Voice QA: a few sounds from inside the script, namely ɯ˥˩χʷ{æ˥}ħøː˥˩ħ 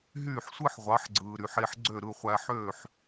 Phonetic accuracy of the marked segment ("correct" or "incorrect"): incorrect